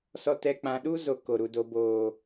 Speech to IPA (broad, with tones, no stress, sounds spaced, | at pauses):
s ɔ˨ t ɛ˨ k͡p ã˨ ɗ u˦ z o˨ k o˨ ɾ u˨ d o˦ b oː˦˨